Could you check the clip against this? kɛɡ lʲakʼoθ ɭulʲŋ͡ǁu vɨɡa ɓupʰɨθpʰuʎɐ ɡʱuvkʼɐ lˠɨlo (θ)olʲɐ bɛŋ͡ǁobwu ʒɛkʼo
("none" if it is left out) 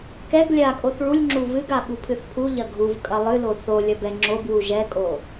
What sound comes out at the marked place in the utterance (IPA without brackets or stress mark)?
θ